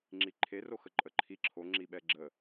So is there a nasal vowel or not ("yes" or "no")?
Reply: no